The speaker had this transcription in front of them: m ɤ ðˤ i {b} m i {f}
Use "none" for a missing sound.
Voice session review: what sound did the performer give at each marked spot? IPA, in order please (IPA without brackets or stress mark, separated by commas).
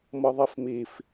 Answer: f, f